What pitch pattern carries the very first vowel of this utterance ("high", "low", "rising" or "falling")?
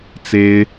high